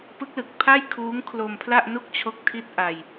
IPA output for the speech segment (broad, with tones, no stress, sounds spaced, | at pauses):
p ɯ˦˥ k̚ l ɯ˨˩ k̚ pʰ a˥˩ j kʰ uː˦˥ ŋ kʰ l o˧ m pʰ l a˥˩ ʔ n u˥˩ k̚ t͡ɕʰ o˦˥ k̚ tʰ i˥˩ t̚ ʔ a˧ j